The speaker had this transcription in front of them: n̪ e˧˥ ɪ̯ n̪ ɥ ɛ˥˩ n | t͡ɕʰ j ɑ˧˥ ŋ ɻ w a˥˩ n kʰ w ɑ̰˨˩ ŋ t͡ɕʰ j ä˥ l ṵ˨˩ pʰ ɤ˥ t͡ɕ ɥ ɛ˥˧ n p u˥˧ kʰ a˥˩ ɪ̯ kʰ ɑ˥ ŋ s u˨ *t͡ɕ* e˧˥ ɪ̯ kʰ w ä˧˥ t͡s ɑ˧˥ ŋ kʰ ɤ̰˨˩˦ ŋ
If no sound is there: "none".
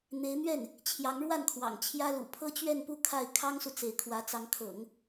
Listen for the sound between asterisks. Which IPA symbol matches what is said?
t͡s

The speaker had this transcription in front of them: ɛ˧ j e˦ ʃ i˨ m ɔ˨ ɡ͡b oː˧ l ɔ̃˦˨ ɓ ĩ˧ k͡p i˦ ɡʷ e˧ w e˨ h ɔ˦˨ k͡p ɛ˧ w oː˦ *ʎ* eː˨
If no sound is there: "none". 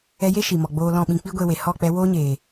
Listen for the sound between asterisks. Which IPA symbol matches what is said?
ɲ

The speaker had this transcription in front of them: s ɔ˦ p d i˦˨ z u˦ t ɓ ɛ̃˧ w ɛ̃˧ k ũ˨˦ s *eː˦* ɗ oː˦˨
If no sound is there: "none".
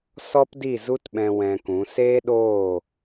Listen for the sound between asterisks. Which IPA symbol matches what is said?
eː˦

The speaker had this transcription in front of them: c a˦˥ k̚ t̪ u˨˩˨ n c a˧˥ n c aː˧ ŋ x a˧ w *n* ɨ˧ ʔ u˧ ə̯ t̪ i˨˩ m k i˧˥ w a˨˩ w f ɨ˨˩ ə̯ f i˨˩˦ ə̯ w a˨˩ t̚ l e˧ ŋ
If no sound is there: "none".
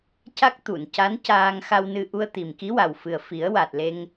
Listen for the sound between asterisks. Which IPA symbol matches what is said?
n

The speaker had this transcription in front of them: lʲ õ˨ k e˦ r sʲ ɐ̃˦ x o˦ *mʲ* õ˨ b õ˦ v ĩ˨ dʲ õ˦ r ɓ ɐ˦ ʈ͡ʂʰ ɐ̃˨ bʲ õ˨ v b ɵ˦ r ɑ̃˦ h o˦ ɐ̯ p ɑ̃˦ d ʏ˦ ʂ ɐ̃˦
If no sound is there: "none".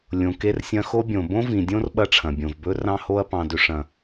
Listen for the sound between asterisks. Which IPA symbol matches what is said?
bʲ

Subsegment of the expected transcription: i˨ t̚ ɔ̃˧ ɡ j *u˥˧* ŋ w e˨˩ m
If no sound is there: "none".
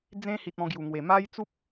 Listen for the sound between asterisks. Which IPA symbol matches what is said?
u˨˩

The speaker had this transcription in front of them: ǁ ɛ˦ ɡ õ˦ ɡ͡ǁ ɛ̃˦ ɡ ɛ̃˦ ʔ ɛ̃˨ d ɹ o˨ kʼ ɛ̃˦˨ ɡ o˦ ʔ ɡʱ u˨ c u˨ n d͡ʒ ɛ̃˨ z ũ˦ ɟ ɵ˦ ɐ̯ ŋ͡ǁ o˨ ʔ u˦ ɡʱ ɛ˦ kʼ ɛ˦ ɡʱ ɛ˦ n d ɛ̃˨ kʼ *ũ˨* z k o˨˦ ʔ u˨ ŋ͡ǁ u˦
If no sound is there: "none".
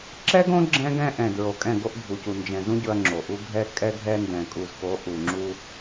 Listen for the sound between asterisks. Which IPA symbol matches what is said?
u˨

